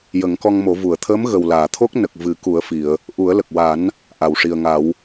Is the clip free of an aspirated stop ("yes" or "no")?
no